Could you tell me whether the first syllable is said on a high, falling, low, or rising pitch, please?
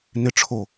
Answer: low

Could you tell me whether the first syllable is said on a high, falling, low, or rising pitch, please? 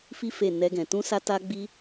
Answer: high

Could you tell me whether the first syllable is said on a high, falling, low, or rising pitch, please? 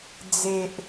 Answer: low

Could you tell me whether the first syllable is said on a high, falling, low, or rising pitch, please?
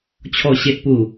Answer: low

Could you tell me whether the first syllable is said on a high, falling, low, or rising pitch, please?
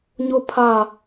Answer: high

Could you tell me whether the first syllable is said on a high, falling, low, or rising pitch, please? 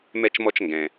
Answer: high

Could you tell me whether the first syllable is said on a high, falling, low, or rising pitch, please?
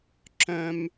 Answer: high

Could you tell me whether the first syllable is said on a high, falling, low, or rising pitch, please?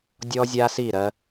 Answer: high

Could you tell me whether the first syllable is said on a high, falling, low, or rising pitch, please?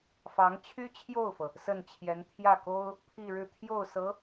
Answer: rising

